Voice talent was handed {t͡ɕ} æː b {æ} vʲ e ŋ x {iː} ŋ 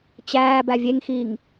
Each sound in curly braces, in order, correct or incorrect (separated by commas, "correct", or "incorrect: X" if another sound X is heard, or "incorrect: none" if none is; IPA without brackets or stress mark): correct, correct, correct